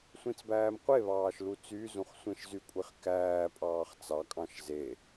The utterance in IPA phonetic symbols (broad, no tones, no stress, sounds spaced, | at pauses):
sʷ ĩ t͡s b æː m qʷ e β ɑː ʃ l u t͡s y z ũ χ sʷ ẽ ʃ z y kʷʼ i χ k æː pʼ ɑː χ t͡s ɑ kʼ ɑ̃ ʃ z e